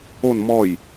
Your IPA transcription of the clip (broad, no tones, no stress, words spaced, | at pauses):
on mɔj